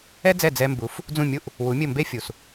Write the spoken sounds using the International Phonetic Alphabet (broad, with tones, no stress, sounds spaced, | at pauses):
ɛ˥ d͡z ɛ˥˩ d͡z ɛ˧ m b u˩˥ f | d͡z ũ˥˩ mʲ u˥˩ ʔ | w u˩˥ mʲ ɘ˥˩ m b e˥ fʲ u˩ s